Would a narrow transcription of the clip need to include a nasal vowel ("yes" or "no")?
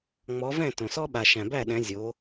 yes